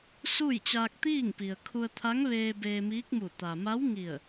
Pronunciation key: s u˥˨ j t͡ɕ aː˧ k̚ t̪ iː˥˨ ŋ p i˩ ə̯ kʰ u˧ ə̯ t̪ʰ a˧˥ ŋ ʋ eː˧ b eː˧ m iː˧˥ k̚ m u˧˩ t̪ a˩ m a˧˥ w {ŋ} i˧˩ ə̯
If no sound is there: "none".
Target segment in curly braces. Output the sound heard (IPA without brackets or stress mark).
ŋ